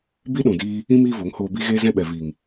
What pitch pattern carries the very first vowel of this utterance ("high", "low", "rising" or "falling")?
high